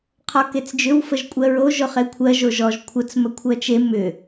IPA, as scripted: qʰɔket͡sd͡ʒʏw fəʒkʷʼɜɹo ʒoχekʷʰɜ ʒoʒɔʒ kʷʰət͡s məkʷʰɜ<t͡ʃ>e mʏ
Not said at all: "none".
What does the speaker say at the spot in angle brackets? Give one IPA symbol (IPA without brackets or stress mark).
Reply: t͡ʃ